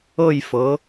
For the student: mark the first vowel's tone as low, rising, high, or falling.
falling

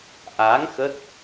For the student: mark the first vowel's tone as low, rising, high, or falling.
rising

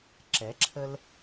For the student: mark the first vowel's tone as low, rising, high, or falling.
rising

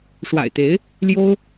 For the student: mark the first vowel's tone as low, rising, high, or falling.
low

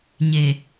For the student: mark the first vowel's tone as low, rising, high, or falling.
low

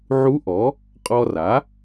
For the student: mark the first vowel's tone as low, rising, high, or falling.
rising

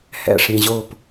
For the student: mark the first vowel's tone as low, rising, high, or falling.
falling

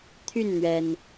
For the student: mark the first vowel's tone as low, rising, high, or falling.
falling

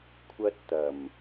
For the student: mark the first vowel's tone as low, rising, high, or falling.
high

